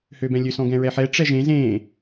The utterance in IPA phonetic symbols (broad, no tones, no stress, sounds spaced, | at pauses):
h ø b ɛ̃ lʲ ø s ɔ̃ ɡ ɛ̃ ɹ ɛ ħ ɛ ʈ͡ʂ ɛ ʒ ẽ z ẽː